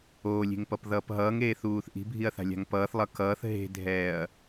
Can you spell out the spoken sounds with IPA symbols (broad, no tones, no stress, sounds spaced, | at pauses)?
oː lʲ e̤ ŋ p ʌ p ð ʌː p ɦ ʌː ŋ eː θ uː θ ʔ i̤ bʱ i ɐ̯ θ a̤ lʲ a̤ ŋ p ʌː θ lˠ ʌ k ʌː θ ɦ e̤ dʱ ɛː ɐ̯